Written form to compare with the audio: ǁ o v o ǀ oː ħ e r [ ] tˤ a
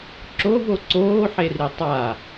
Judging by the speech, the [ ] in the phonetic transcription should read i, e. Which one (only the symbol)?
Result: i